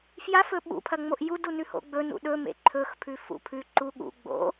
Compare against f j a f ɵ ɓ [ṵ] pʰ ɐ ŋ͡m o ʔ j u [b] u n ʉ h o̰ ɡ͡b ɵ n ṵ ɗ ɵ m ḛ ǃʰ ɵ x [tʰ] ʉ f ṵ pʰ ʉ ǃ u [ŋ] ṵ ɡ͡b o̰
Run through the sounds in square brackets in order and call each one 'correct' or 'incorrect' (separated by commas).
correct, incorrect, incorrect, incorrect